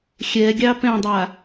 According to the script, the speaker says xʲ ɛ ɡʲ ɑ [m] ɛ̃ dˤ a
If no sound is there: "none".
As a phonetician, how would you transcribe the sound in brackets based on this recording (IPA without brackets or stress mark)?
p